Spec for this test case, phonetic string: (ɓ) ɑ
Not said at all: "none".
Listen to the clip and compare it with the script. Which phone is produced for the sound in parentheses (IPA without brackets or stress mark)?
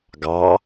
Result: ɡ